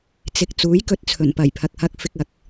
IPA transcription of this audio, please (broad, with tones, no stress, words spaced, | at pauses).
t͡sɪ˧k̚ t͡suː˨˥jkɵ˧t̚ t͡sʰɵ˨˩npɐ˨˩jpʰɐ˨k̚hɐ˧k̚ fɪ˧k̚ɐ˨k̚